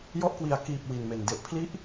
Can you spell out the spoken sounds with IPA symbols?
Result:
j ɔ˦˥ ʔ k w i˨˩ a̯ k iː˨˩ p̚ w i˨˩ n m e˨˩ n d e˨˩ ʔ pʰ l i˦˥ ʔ

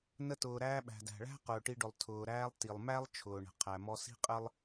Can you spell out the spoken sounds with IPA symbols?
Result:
n ə˧ t ʊː˩ ɾ æː˧ ɓ æ̤˩ d æ̤˩ ɭ æ̤˥ q ʊː˩ ʈ i˧ ɖ ʊ˩ lˠ tʰ ʊː˩ ɾ æː˧ lˠ t i˩ lˠ m æ˥ lˠ t͡ʃʰ ʊː˩ ɳ ə̤˩ qʰ æ˩ m ɔ˧ s i̤˥ qʼ ə˥ lˠ

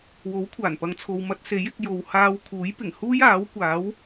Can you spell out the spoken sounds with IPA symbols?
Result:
w o˨˥ w kʷʰ aː˨˩ n p ɐ˨˧ ŋ t͡sʰ o˨ w m ɐ˧ t̚ s e˨˥ j ɪ˨ k̚ j o˨ w h aː˧ w kʰ uː˨˥ j p ɪ˨˩ ŋ h uː˥ j aː˨˥ w kʷ aː˨˥ w

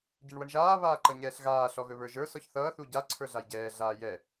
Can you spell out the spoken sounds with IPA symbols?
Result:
ɟ ɛ ɳ w ʌ ɳ ʒ aː β aː ǃ ʌ ɲ ɛː ɬ ɣ aː ɬ ɔ ɣ ɵ β ə˞ ʒ ə˞ s ɔ ç θ ʌː θ u ɟ a ǀʰ ə˞ ɮ a j ɟ ɛː ɮ aː j ɛ

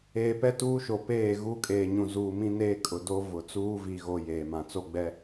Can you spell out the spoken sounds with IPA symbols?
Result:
eː˨ p ɛ˦ t uː˦ ʃ o˨ p eː˦˨ ɣ u˦ kʼ eː˨ ɲ ũ˨ z uː˨ m ĩ˦ n eː˦ kʼ ʊ˨ d o˦ v ʊ˨ t͡s uː˦ v i˨ ɣ o˨ j eː˨ m ã˨ t͡s o˦ ɡ͡b ɛ˦

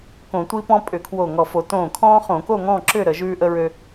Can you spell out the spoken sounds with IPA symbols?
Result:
k õ˧˩˧ tʷ i˦ p ɔ̃˦ pʼ ʏ˧˩˧ kʰ w o˧˩ ŋ ɔ˧˩ f o˧˩˧ t õː˧˩ kʰ ɔ̃ː˦ χ õ˧˩˧ k o˥˨ ŋ ɔ̃ː˥˨ ǁ ʏ˥˨ ɾ ə˧˩˧ ʒ ʉː˦ ʔ ə˦ ɹ ø˦

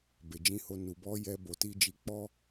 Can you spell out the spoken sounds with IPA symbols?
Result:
b e˨ d͡ʒ ĩ˧ h o˧ n u˨ b ɔ˨˦ j ɛ˧ b o˨ t i˧ d͡ʒ i˨ k͡p ɔ˧

